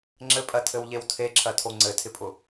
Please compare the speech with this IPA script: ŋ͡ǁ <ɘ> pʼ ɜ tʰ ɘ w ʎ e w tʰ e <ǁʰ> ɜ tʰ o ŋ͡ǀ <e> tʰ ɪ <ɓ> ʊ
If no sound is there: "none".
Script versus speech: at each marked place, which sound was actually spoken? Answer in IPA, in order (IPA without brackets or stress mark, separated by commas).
ɘ, ǁʰ, ɘ, pʼ